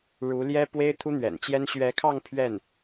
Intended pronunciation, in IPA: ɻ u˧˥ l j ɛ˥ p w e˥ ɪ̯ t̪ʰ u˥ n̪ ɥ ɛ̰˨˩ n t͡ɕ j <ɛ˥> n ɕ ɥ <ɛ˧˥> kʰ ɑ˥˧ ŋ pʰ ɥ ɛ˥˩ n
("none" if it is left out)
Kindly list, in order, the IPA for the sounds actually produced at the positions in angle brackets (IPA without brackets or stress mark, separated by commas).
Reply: ɛ˥, ɛ˧˥